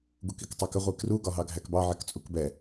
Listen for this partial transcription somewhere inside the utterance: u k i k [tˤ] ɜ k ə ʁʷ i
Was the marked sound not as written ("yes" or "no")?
no